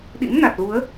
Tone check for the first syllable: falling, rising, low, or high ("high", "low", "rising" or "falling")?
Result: rising